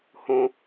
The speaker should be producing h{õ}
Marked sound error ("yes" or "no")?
no